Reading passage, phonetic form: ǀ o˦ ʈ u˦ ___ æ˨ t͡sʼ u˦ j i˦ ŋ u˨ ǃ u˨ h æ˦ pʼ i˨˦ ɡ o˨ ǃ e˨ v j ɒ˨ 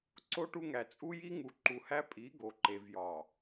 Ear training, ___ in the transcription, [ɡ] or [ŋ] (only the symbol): ŋ